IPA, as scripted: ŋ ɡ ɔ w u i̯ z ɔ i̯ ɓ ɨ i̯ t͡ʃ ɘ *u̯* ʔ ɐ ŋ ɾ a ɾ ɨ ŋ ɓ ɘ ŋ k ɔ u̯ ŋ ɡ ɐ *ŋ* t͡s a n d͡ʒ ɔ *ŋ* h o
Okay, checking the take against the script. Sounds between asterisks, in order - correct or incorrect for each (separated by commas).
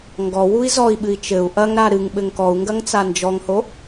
correct, correct, correct